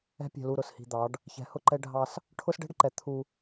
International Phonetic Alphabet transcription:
ɛ̤˦ pʲ ɛ̤˨ l u˨ ɾ ʊ˨ s h i̤˨ d̪ ɑ˨˦ ɖ | ç ɛ̤˨˦ h ʊ˦ ǃ ɛ˦ ɖʱ ɑ˦ s | ʈʰ ʊ˦ s ɖ ɛ̤˦ ɖ ǃ ɛ˨ t̪ʰ u˦

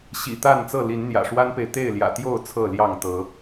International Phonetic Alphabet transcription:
ɕ ḭ˨˩ t̪ a˥˨ n t͡s ɤ˥˨ l i˨˦ n n̪ j ä̰˨˩ ʂ w a˦ n p e˨ ɪ̯ t̪ e˥˨ ɪ̯ l j ä̰˨˩ t̪ j o˥˨ ʊ̯ t͡sʰ ɤ˥˨ l j ɑ˥˨ ŋ t̪ ɤ˨˦

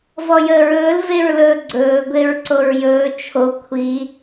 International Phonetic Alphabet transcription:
v ɔ j əː ɹ ɵː l v e ɹ l ɵː ɡ͡ǀ ɵː ɡʷ e ɹ ǀ o ɹ j ɵː t͡ʃʰ o kʷʰ i

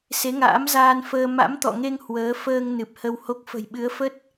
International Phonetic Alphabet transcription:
s e˨˦ ŋ a̰ː˧˥ m z aː˧ n f əː˧ m a̰˧˥ m t̪ ɔ̰˧˨ ŋ e˧ ŋ h w əː˨˦ f əː˧ ŋ n ɨ˨˩ p̚ h ə˧ w h o˦˥ k̚ f ə̤˨˩ j ɓ ɨ˨˦ ə̯ f ə˦˥ t̚

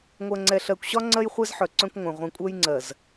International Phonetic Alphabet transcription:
ŋʷ ɜ˨ ŋ͡ǀ ɛ˨ ɬ ɜ˨ kʷ ɕ ɒ˦ ŋ͡ǀ ɜ˦ j χʷ ɛ˦ z ħ œ˨ ǀ œ̃˦ kʷ ŋʷ œ̃˨ ʁʷ ĩ˨ kʷʼ œ˦ j ŋ͡ǀ ɜ˨ z

